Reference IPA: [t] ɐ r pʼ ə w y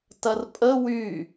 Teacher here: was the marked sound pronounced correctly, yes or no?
yes